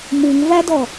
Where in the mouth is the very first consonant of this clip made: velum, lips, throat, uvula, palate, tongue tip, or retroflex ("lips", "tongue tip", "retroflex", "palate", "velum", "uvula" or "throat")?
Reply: lips